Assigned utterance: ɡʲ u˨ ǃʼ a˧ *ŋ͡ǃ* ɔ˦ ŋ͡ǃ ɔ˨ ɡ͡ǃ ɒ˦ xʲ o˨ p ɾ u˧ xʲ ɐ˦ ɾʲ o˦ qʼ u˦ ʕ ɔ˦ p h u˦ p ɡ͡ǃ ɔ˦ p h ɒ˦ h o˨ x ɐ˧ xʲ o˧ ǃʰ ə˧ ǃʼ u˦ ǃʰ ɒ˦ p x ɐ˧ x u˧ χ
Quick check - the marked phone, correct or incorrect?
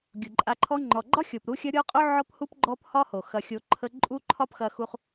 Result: incorrect: ǃʰ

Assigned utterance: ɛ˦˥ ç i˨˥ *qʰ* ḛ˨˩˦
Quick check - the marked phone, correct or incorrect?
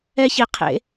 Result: correct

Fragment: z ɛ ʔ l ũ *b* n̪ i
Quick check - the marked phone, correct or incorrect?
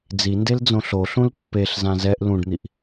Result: incorrect: ɖ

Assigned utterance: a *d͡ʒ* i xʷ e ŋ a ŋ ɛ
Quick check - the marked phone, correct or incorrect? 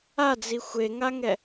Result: incorrect: d͡z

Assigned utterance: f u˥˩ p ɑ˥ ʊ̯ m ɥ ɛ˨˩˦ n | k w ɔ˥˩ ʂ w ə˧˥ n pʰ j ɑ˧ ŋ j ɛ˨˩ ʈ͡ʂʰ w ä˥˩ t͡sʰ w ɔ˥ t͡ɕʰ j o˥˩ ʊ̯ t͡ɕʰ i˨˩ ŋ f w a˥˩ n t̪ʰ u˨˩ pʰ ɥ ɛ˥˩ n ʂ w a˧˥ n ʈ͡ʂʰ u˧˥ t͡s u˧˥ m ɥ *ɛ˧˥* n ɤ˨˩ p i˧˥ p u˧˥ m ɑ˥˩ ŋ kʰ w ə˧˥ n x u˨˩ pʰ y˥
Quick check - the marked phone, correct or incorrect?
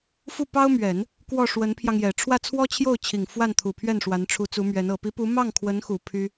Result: correct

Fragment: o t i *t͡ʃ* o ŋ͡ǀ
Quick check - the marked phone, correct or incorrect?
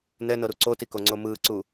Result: incorrect: k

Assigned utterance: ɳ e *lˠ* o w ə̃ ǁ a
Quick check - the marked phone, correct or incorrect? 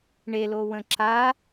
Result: incorrect: l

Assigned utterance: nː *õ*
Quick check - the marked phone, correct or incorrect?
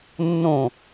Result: correct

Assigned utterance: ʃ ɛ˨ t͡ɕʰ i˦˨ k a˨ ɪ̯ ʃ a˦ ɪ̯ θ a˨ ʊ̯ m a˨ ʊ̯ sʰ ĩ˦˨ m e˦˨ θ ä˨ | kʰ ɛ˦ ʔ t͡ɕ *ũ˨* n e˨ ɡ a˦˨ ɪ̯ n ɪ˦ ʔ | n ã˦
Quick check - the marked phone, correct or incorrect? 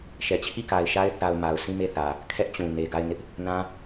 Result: correct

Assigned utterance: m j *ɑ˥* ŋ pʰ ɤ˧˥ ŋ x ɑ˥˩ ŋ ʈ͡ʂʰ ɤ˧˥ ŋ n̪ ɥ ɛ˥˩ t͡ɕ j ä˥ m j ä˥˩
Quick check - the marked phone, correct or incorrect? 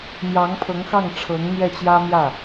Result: incorrect: ɑ˧˥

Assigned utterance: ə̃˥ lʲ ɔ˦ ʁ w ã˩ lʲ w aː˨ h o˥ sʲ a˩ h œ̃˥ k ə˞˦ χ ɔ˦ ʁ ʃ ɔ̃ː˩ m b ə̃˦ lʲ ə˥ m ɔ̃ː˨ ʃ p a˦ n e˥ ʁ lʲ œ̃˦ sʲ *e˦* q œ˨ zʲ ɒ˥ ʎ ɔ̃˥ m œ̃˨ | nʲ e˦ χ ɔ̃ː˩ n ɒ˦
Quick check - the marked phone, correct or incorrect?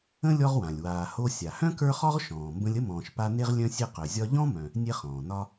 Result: correct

